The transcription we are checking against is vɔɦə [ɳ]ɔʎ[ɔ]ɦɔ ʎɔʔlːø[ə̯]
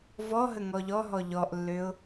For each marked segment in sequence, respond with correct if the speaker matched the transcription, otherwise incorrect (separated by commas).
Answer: incorrect, correct, incorrect